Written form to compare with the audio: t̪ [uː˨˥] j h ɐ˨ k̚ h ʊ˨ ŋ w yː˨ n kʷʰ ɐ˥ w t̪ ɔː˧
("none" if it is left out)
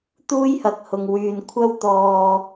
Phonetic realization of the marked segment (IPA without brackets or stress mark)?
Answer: uː˥